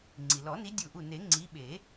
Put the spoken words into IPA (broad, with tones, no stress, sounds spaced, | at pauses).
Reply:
ŋ͡ǀ i˩ l ɔ˨˩˦ n i˨˦ dʲ u˧˩ ʔ u˧˩ n e˨˩˦ ŋ͡ǀ i˨˦ ɓ e˨˩˦